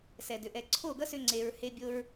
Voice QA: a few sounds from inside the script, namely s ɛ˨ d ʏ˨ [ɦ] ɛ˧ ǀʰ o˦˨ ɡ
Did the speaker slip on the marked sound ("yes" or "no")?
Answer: yes